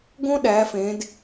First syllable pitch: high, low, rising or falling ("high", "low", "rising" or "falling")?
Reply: high